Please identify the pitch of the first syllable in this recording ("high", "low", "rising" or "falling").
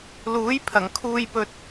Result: rising